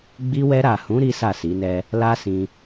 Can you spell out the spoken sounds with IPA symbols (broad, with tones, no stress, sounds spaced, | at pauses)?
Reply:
ɡ͡b i˧ w ɛ˧ ɾ a˨ h ũ˨˦ ɾ i˦ s a˦˨ s i˨˦ n ɛ˦ | l a˦ s ĩ˧